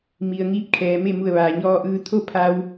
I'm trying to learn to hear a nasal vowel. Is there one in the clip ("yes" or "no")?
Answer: no